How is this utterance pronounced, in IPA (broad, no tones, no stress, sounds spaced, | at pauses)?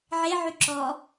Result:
ʕ e ʕ y ǁ ɔ